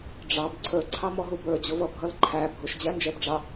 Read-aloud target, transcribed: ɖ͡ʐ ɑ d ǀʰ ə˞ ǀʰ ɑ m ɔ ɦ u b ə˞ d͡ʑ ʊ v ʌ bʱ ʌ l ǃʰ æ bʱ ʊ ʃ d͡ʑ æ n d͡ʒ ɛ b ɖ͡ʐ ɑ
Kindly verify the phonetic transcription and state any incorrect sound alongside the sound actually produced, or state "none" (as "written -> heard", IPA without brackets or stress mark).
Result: d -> b